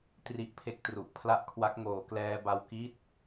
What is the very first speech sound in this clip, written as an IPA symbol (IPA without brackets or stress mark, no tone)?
t